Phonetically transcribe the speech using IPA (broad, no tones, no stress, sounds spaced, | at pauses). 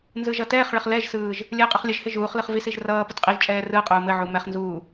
n z ɯ ʒ ʌ t ɛː χ ɭ ə χ l ɛ ʒ s ɯː ʒ | lʲ ɘː qʼ ʌ χ lʲ ə ʒ h ɪ ʒ uː χ l ɯ χ v i s i ʒ r ʌː p ə t qʼ i ʒ t͡ʃʼ ɛː r ɯ qʼ uː m ɘ ʕ u m ɛ χ n z uː